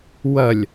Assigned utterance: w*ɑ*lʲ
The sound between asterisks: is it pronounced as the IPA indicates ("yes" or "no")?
no